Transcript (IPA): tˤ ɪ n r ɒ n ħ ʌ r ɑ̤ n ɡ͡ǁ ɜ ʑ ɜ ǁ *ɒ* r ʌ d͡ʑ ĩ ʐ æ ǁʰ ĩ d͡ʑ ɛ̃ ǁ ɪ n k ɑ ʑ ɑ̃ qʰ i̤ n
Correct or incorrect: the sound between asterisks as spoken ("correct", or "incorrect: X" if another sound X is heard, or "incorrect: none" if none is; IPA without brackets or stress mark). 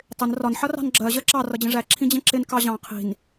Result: incorrect: ɑ